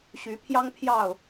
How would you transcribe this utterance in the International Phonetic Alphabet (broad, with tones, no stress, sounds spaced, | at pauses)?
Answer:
ɕ y˨˦ pʰ j ɑ˦ ŋ pʰ j ɑ˥˨ ʊ̯